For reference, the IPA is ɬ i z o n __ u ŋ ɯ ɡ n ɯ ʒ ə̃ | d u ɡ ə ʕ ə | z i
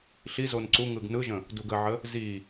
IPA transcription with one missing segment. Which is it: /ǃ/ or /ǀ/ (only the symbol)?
ǀ